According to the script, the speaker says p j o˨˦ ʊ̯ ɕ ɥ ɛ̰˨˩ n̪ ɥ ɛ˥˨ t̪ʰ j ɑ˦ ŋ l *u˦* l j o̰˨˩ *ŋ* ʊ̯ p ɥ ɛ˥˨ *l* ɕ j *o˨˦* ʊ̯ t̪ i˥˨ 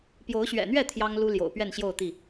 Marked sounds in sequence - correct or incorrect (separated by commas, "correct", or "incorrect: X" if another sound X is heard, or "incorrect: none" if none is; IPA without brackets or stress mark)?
correct, incorrect: none, incorrect: n, incorrect: o˥˨